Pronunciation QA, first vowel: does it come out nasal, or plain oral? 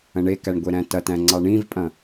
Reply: nasal